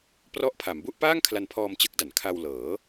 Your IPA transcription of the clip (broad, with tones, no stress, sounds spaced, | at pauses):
p r ɔ˦˥ ʔ pʰ a˩˦ m b u˥˩ ʔ p aː˥˩ ŋ kʰ l a˧ n pʰ ɔː˧ m t͡ɕ ɯ˦˥ k̚ d a˩˦ n kʰ a˧ w l ɤː˩˦